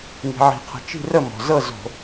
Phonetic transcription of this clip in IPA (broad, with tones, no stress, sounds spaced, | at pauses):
ŋ i̤˩ ʕ i̤˩ qʰ ə̤˩ t͡ʃ i̤˥˩ r ə˥˩ m ɔ̤˩ z ɤ˥˩ z o̤˧˩˧